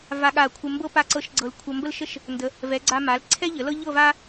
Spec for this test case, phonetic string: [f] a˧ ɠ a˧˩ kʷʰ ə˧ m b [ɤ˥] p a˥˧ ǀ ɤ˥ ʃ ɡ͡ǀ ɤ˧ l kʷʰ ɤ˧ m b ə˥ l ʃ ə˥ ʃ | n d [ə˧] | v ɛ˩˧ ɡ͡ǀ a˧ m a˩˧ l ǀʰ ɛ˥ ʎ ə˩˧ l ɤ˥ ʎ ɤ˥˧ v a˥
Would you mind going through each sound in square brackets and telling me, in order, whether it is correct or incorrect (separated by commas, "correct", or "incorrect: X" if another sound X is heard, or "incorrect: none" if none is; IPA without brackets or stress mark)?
incorrect: v, correct, incorrect: ə˩˧